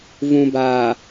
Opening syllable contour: low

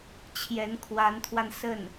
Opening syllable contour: rising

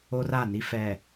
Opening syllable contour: high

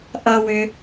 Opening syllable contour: high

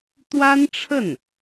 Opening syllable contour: high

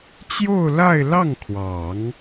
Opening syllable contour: falling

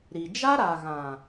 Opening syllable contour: low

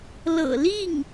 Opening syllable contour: low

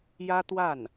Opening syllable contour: high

